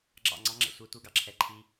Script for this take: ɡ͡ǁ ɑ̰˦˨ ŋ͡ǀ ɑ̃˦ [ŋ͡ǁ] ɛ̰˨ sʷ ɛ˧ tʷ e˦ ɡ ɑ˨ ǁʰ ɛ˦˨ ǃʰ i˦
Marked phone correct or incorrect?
correct